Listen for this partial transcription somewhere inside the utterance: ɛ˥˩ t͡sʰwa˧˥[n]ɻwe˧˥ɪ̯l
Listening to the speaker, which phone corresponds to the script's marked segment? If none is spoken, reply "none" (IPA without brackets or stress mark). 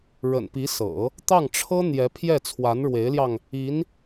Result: n